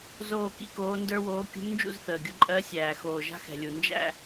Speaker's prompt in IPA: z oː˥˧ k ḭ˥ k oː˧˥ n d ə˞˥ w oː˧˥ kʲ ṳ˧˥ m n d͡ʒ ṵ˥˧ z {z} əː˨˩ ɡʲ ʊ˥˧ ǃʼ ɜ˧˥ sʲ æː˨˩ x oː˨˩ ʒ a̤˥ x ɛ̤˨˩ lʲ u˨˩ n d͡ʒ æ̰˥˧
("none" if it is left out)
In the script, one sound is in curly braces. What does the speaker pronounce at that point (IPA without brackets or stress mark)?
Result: θ